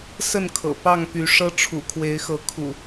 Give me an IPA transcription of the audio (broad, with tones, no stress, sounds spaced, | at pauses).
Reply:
s ə˥˨ n kʰ ɤ̰˨˩ p ɑ˥˨ ŋ p y˨˦ ʂ ɤ˦ ʈ͡ʂʰ ṵ˨˩ kʰ w e˨˦ ɪ̯ x ɤ˨˦ kʰ ṵ˨˩